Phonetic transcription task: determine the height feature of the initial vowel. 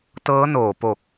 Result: mid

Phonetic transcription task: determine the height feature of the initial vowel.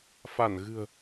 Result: low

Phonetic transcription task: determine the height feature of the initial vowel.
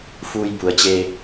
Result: high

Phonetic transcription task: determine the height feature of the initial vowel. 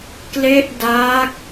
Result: mid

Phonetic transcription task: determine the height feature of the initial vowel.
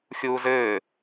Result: high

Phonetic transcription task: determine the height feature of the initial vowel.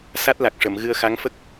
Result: low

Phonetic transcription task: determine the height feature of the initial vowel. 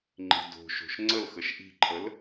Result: high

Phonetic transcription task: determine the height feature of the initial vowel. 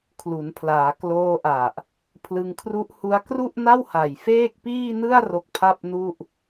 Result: high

